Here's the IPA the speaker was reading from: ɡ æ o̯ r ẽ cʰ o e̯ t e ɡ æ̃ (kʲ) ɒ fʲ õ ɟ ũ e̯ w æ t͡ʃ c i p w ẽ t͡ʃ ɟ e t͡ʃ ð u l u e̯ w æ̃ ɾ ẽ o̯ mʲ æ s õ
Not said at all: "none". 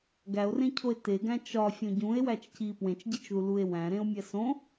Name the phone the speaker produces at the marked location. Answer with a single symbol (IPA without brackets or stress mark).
t͡ʃ